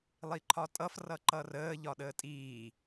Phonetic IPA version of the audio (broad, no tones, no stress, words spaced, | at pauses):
lˠiǃʰɒtʼʌf rʌǃʌrəː ʎɒɗəːtʼiː